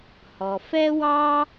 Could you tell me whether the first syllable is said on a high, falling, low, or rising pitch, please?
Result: low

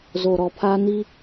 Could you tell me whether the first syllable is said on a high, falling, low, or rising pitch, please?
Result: low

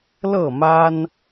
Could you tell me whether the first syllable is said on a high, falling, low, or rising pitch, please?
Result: falling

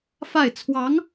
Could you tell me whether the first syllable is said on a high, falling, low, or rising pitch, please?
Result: falling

